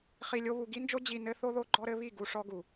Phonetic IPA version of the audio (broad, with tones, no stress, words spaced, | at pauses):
χi˧lʲo˦βu˧ ɡi˦nd͡ʒo˦ d͡ʑi˧nɘ˦ θo˦ðo˦ɡ͡ǃɔ˦ɾɘ˦ βi˦˨ ɡu˧ʂɔ˦ ɡu˨